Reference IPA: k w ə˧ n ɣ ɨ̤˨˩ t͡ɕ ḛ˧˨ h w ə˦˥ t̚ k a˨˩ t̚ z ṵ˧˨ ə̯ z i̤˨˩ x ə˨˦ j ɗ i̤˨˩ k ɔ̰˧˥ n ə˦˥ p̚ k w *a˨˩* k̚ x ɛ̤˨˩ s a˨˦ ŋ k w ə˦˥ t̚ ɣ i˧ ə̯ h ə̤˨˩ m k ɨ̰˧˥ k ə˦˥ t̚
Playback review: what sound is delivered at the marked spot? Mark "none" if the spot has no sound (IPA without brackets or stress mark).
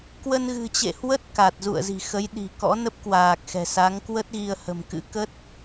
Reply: aː˨˩